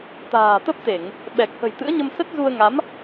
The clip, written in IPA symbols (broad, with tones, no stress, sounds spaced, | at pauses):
t̪ a̤ː˨˩ t̪ ə˦˥ p̚ t̪ e˧˩˨ ŋ | ɓ ɛ˨˩ k̚ h ə̤˨˩ j t̪ ɨ̰˧˥ ə̯ ɲ ə˧ m s ə˦˥ t̚ z u˧ ə̯ ŋ a˨˦ m